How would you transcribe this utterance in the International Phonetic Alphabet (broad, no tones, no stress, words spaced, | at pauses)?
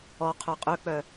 ɔ qʰœqʼøk͡pœ